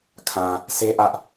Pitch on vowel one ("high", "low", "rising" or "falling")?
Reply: low